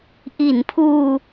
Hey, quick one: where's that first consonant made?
throat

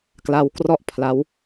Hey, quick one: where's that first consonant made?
velum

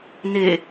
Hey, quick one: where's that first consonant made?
tongue tip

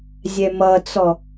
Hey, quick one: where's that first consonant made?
tongue tip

